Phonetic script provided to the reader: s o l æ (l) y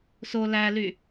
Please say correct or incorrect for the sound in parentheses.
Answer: correct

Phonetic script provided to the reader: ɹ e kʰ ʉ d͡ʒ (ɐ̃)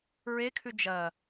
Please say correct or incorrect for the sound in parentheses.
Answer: incorrect: ɐ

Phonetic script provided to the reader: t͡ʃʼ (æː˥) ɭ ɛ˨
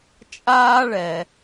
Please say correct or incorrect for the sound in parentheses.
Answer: incorrect: aː˥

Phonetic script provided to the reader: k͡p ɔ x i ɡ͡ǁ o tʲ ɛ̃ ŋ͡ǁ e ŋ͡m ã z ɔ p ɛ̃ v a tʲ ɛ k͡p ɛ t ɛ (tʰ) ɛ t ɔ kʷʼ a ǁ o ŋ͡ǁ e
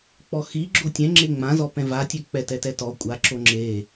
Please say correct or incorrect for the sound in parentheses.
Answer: incorrect: t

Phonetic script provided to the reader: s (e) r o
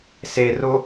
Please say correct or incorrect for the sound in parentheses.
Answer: correct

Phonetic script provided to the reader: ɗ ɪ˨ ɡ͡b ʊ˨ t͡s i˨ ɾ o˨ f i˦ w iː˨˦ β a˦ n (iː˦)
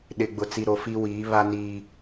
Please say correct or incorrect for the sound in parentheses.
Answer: correct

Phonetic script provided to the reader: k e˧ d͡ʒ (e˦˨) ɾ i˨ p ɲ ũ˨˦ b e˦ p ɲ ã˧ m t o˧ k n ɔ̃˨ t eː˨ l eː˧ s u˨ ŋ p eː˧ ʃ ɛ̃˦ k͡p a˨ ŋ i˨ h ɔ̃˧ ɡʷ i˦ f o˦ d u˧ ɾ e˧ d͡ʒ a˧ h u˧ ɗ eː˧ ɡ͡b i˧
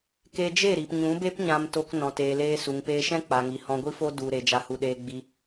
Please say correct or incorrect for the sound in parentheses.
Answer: correct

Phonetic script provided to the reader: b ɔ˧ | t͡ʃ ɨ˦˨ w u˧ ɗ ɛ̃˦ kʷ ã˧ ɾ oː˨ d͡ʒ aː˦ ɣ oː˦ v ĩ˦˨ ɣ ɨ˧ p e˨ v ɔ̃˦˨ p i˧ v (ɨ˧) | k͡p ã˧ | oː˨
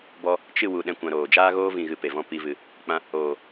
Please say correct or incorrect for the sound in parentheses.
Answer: incorrect: ɨ˨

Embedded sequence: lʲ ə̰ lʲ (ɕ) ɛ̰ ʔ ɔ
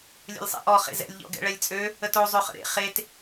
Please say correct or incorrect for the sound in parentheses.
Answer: incorrect: sˤ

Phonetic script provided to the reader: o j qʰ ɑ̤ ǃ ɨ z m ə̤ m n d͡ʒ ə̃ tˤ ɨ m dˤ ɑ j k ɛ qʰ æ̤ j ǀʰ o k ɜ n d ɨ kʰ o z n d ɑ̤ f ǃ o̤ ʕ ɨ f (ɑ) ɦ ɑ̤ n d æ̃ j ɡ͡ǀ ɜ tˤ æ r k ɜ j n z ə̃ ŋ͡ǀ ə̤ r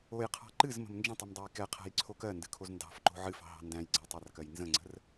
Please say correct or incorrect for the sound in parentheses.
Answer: incorrect: ɑ̤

